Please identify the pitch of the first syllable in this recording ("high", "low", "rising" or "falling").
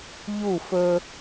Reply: falling